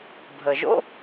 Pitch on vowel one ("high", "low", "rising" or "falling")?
low